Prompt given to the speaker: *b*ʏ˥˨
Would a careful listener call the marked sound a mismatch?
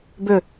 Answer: no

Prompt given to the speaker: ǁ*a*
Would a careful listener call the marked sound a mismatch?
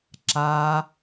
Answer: no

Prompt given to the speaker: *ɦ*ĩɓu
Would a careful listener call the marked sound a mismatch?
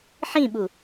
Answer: yes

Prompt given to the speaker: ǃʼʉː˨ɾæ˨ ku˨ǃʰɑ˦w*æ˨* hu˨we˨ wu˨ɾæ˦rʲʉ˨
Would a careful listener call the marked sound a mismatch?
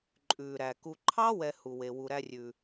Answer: yes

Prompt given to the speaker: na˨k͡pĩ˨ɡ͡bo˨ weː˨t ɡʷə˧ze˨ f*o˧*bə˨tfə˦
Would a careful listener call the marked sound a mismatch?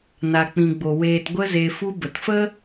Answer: yes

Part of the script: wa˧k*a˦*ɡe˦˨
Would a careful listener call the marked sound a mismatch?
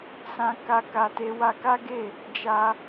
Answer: no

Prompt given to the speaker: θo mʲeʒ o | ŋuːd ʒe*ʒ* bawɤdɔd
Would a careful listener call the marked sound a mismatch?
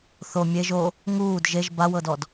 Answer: no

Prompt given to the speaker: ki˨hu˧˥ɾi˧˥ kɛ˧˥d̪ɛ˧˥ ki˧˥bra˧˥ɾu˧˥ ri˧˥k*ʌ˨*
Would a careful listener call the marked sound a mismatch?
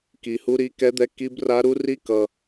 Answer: no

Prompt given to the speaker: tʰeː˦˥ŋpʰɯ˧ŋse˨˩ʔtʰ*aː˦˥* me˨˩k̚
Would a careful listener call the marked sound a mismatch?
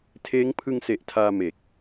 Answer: yes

